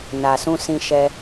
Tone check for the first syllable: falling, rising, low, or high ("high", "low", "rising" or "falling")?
low